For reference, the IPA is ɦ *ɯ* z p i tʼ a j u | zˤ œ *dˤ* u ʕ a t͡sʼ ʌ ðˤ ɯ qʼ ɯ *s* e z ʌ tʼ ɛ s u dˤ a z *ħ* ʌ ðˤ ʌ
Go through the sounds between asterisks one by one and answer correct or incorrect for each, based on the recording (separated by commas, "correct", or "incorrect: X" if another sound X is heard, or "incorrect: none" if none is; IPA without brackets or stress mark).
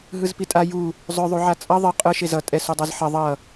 correct, incorrect: ðˤ, incorrect: ʃ, correct